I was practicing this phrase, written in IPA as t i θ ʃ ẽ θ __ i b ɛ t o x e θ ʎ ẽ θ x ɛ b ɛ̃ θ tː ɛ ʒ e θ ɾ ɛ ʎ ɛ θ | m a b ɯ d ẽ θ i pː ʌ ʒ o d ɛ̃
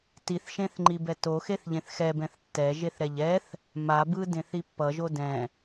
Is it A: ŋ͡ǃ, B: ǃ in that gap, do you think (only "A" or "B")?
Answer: A